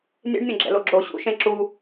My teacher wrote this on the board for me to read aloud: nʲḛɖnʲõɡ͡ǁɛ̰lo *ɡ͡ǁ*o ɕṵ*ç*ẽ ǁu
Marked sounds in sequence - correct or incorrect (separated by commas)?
correct, incorrect